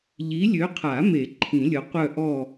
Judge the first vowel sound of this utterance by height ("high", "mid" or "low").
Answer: high